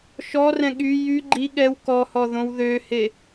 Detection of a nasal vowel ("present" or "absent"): present